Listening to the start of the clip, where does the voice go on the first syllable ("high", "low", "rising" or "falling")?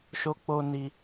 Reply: high